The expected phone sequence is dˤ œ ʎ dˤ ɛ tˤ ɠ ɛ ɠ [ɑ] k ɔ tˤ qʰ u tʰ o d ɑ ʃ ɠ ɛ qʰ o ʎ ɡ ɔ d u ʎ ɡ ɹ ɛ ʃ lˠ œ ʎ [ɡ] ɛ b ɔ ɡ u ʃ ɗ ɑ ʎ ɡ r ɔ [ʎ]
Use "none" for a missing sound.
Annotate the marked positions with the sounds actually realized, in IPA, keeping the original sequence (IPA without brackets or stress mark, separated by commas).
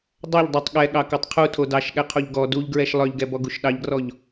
ɑ, ɡ, ʎ